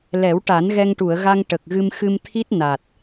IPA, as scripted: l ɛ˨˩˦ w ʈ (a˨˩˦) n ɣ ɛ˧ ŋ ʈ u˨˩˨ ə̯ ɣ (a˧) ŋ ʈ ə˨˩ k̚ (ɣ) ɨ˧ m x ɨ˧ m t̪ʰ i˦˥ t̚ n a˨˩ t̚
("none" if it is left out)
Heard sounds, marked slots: a˨˩˦, a˧, ɣ

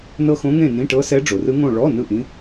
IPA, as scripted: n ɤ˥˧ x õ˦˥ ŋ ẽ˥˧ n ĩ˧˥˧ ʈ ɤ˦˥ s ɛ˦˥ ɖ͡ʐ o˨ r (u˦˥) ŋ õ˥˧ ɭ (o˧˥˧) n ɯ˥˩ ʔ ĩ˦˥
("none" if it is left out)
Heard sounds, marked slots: ɯ˦˥, ɔ˧˥˧

